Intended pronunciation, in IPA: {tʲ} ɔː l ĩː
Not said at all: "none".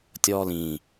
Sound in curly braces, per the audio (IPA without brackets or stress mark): tʲ